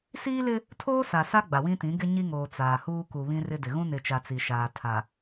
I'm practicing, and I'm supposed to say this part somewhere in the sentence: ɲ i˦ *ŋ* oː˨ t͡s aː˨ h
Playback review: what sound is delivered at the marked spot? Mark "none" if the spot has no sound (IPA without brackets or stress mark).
ŋ